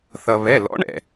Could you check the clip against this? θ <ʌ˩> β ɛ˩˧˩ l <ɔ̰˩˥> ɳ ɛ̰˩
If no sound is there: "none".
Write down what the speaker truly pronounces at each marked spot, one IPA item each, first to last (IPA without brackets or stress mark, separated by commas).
ʌ˩, ɔ̰˩˥